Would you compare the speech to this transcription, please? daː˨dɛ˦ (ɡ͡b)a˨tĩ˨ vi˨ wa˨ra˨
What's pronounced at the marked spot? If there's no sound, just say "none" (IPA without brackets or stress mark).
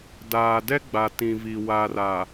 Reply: ɡ͡b